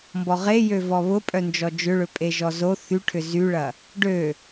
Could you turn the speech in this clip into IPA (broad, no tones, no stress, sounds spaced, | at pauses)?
m b ɔ ʁ e j ø v ɔ β ʊ pʼ œ n d͡ʒ ɔ d͡ʒ ʏ ɭ ø pʼ e ʒ ɔ z o θ y ʈʰ ʏ z y ɭ ɐ | ɖ ø